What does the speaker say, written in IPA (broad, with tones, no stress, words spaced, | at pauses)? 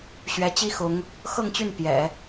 ɕɥɛ˧˥t͡ɕi˥ xʊ˧˥ŋ | xɤ˥˧ŋt͡ɕy˥˩n pjɛ̰˨˩˦